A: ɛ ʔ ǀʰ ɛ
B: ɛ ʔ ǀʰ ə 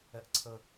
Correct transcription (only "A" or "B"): B